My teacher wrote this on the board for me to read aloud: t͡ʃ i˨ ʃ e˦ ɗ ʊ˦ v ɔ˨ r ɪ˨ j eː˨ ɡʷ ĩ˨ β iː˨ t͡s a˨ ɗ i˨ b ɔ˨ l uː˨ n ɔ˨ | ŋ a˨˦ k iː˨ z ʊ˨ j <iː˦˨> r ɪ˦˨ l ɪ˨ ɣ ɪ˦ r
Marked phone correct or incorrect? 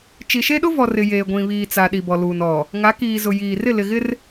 incorrect